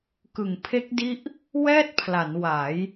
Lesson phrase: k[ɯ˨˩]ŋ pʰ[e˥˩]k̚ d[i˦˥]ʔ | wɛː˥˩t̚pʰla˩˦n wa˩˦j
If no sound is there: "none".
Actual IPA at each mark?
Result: ɯ˨˩, e˦˥, i˦˥

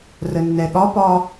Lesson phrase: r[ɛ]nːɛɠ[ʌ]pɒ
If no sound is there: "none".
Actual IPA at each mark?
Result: ə, ɒ

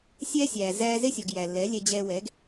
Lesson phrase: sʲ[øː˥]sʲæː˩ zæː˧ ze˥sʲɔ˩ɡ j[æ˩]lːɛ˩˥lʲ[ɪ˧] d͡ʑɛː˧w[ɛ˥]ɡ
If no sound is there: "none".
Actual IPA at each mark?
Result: ɛː˥, æ˩, ɛ˧, ɛ˩˥

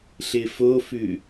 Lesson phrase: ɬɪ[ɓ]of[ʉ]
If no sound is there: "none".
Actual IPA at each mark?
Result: f, ʉ

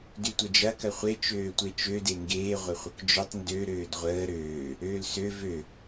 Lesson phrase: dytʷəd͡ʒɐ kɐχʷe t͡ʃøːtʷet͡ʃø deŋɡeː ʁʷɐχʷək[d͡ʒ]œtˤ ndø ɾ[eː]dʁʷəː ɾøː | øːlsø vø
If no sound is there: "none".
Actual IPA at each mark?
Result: d͡ʒ, øː

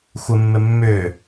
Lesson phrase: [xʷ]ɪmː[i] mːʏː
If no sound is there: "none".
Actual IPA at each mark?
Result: xʷ, ɪ

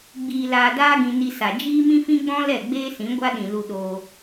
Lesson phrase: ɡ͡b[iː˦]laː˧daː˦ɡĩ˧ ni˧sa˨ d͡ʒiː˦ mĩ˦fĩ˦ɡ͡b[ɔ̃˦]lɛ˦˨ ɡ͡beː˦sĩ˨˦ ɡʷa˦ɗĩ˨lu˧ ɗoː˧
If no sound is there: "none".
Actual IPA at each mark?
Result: iː˧, ɔ̃˦

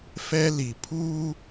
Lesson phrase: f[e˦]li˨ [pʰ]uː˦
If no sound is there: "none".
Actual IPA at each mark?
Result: ɛ˦, pʰ

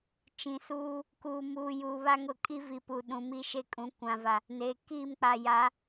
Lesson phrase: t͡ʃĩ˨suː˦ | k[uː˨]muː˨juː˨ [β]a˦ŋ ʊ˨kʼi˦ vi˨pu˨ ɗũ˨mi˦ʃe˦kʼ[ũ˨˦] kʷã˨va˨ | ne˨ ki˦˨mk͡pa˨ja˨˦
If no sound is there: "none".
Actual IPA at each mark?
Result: uː˨, β, ũ˨˦

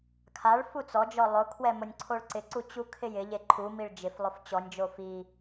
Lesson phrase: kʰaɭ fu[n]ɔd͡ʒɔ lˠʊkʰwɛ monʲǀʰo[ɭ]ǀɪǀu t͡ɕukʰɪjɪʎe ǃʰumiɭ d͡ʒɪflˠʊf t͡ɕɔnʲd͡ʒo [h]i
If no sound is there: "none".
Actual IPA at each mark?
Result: t͡s, ɭ, f

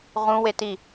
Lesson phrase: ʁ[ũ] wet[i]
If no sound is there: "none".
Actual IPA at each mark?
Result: ũ, i

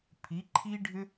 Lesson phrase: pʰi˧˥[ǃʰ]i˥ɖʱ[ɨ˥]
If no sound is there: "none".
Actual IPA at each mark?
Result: ǃʰ, ʏ˥

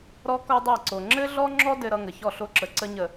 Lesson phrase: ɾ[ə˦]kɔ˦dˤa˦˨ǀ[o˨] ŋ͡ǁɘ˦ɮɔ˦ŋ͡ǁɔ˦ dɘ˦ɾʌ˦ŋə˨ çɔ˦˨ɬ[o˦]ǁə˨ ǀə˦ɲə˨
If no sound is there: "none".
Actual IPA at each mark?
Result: ɔ˦, o˨, o˦

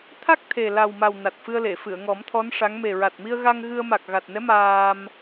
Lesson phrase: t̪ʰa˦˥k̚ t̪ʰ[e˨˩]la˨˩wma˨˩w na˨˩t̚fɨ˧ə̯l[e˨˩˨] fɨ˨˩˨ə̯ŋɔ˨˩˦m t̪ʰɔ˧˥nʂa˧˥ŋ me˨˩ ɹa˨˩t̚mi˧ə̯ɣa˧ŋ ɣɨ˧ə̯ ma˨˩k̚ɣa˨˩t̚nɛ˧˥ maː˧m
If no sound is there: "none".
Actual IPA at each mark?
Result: e˨˩, e˨˩˨

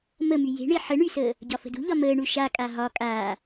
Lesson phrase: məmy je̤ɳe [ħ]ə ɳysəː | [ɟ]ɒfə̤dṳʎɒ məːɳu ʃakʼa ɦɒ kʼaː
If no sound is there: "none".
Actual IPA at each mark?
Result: ħ, ɟ

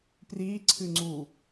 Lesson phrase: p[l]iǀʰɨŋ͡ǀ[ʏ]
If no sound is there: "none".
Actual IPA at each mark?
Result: r, u

